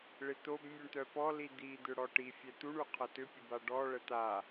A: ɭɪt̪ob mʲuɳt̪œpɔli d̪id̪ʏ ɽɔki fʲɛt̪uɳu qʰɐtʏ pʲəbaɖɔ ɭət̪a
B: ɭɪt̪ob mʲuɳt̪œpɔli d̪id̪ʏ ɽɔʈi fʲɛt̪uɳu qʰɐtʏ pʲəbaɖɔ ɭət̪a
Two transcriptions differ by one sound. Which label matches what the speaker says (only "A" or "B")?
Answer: B